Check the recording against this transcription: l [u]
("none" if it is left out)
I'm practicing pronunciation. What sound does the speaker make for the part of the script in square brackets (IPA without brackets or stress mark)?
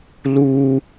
u